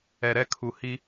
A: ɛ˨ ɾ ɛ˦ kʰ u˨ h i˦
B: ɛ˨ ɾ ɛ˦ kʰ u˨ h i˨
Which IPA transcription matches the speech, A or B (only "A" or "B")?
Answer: A